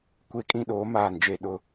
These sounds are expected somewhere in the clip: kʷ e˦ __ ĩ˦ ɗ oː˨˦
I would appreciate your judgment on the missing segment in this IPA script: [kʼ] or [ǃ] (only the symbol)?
kʼ